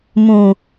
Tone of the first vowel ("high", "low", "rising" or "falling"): low